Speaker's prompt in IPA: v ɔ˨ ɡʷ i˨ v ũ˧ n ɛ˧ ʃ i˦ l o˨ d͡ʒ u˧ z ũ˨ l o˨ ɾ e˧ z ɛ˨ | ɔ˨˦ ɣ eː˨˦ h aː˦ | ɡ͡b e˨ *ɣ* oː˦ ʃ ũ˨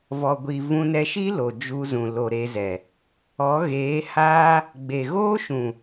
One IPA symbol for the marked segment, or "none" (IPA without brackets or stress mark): ɣ